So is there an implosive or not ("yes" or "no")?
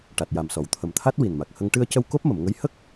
no